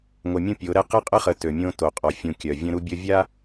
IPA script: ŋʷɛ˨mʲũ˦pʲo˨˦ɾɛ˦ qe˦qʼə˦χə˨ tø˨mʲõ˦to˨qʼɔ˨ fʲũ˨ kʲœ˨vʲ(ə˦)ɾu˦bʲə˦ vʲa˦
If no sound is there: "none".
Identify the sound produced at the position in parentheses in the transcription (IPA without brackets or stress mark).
ə̃˦